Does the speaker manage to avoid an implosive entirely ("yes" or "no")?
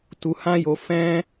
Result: yes